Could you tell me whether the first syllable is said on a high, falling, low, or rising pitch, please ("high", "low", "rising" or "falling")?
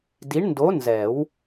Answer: rising